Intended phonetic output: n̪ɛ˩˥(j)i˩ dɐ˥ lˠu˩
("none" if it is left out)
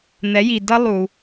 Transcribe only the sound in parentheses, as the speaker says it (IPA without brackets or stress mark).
j